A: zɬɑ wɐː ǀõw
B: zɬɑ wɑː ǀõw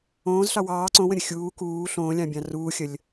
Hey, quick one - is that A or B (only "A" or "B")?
B